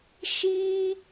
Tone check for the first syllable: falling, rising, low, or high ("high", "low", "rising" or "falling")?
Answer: high